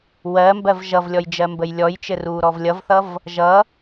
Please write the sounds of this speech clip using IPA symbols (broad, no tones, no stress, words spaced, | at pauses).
wɜmbɜv ʒʌvlʲɔj d͡ʒɜmbəjlʲɔjt͡ʃɘ ruːɾɔvlʲʌvθʌv | ʒʌ